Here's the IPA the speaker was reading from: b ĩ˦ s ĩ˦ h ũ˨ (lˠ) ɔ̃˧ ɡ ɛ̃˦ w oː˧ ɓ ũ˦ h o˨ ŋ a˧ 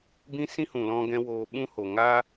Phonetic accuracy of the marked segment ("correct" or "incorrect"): incorrect